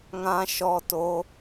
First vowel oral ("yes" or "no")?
no